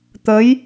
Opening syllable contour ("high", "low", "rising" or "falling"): rising